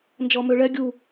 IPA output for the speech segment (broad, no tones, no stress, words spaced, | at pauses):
nd͡ʒɔmøɭɛ ɡʲu